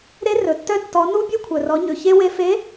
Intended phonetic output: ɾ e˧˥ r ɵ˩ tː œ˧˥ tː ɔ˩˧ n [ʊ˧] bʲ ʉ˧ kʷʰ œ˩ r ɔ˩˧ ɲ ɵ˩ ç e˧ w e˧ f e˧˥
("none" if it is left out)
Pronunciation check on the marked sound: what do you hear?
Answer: u˧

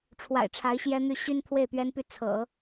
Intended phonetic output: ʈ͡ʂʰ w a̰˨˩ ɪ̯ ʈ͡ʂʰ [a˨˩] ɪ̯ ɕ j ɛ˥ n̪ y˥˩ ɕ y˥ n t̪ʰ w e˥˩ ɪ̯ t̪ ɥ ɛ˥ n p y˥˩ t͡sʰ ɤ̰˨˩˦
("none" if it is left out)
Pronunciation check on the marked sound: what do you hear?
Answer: a˧˥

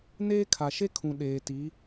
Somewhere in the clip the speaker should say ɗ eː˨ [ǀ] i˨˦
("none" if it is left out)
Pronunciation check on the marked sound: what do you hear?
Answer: t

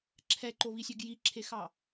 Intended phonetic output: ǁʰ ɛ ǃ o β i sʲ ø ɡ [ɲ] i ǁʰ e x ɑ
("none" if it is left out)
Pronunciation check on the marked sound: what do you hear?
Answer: j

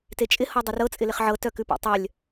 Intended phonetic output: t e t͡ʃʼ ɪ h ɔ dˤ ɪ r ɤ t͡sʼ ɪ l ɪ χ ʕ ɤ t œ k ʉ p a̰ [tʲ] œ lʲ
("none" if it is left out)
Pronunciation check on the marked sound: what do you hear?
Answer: tˤ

